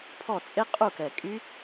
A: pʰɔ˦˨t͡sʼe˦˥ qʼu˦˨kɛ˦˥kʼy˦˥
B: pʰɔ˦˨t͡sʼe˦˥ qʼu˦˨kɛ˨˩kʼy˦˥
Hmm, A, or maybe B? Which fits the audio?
B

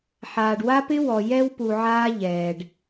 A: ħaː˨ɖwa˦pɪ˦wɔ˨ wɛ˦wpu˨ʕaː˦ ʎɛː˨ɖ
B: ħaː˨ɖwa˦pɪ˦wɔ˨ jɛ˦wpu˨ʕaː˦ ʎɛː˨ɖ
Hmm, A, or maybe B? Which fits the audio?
B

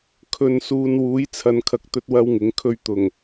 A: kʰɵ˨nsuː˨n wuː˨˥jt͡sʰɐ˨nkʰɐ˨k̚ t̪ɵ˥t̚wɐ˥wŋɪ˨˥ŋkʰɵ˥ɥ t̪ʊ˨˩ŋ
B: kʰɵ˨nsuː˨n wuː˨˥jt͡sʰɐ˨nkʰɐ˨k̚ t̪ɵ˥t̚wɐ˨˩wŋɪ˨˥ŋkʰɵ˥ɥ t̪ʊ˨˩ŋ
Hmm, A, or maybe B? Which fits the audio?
A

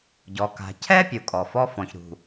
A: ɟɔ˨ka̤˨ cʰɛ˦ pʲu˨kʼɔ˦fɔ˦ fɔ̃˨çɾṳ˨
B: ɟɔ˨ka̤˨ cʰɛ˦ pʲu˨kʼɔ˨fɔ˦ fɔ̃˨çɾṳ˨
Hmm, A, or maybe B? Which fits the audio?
B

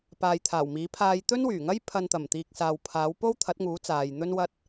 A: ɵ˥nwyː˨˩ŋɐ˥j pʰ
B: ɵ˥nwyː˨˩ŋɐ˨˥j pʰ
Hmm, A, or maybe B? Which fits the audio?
A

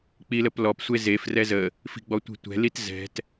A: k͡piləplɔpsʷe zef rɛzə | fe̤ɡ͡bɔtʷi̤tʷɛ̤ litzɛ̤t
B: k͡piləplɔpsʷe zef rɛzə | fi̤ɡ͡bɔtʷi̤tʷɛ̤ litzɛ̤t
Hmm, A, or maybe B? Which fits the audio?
B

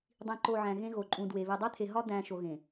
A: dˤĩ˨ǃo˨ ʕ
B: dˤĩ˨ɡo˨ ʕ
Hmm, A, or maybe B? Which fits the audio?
A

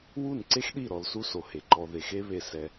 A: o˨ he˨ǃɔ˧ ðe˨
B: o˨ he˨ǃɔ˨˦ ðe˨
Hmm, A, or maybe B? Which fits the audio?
A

